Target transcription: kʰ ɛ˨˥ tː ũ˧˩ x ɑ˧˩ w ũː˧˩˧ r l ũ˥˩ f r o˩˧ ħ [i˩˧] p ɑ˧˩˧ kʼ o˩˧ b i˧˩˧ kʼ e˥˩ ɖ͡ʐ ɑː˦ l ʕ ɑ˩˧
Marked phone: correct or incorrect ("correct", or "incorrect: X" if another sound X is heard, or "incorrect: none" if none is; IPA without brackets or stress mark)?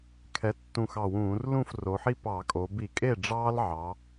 incorrect: i˦